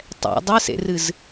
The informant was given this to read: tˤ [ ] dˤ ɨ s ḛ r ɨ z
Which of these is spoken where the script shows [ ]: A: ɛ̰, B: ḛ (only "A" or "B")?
A